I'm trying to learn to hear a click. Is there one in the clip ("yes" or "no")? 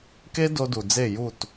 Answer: no